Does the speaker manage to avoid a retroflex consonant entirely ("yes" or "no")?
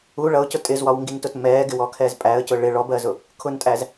no